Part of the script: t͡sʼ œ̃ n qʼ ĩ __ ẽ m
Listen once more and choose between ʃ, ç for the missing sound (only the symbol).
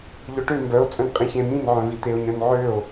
ç